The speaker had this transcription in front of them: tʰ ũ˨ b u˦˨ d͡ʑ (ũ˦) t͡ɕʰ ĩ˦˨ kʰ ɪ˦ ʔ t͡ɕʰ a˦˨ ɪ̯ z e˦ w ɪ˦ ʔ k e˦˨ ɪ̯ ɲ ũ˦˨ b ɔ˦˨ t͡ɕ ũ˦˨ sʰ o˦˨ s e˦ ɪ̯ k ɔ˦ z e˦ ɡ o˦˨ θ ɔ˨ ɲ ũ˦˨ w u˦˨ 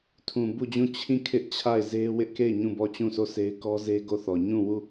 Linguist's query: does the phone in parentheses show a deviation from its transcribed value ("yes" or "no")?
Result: yes